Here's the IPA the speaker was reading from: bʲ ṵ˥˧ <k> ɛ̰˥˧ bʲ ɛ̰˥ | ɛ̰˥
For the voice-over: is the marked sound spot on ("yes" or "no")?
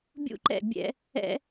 no